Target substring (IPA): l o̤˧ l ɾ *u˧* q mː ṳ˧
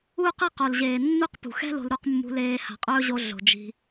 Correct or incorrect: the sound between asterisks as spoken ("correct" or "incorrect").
correct